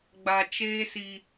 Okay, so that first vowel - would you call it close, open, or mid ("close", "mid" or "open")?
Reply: open